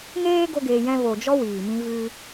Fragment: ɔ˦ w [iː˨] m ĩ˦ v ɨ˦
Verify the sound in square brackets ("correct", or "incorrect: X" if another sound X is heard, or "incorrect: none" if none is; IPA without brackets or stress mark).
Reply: correct